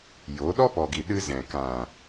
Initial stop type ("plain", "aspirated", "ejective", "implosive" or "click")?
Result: implosive